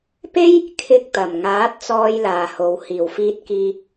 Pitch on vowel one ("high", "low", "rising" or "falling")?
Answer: high